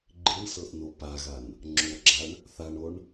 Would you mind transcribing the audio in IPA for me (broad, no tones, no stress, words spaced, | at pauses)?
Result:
ɡ͡ǃiɳsɤʔno paɣan | ŋ͡ǁoɡ͡ǁaɳ | θaɳoɳ